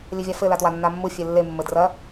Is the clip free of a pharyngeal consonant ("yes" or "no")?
yes